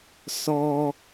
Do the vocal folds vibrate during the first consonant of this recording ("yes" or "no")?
no